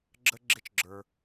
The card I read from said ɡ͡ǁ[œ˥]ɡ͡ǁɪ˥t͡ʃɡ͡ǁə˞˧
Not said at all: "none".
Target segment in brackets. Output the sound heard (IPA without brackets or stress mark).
ə˥